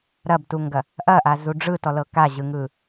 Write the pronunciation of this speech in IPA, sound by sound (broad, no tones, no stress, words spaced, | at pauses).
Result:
ɾɐbtuŋɡɐ | ʔɐʔazu ɖ͡ʐɯtɔlɤ kaʑɯŋɯ